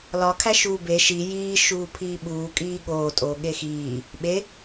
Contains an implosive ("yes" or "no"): yes